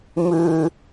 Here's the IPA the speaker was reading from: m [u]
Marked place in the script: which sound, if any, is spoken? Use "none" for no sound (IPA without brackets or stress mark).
ʉ